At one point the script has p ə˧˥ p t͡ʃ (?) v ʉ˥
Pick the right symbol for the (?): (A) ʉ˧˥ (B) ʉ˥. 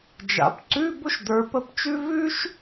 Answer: B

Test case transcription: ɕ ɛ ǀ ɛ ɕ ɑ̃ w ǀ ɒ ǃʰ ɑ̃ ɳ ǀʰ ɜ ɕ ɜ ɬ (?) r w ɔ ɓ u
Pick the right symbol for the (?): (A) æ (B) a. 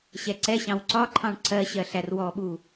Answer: A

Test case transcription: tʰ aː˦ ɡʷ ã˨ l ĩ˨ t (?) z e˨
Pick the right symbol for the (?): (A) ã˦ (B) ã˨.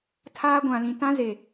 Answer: A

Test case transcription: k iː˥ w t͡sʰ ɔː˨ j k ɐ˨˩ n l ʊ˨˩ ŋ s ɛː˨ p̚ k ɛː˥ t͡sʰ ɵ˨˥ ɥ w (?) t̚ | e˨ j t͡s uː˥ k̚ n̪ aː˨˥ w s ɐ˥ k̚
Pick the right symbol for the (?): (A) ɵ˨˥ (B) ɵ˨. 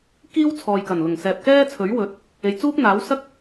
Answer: A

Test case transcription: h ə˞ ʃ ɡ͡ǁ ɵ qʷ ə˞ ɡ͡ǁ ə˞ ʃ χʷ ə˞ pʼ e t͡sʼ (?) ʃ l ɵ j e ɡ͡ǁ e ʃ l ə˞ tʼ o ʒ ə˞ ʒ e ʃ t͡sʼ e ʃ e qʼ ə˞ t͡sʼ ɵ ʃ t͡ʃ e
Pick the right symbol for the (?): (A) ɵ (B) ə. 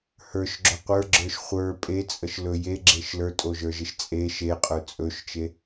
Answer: B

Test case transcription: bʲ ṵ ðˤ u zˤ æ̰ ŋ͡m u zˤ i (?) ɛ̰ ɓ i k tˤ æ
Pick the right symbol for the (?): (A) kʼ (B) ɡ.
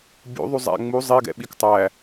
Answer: B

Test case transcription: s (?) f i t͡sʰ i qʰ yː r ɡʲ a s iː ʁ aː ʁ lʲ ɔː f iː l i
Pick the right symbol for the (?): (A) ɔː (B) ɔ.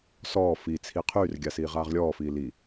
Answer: A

